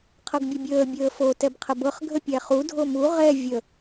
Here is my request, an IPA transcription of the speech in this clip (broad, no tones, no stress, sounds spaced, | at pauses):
qʰ ɤ ɡ bʲ ə bʲ əː bʲ əː f o t ɛ b qʰ ə b ɤ χ ɡʱ ə pʲ æ χ u dʱ o m u ʁ ɛ vʲ ə